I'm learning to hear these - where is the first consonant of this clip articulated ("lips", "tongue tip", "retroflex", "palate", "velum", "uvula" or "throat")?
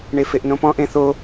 retroflex